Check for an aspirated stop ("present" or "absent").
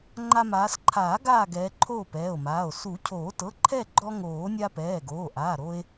present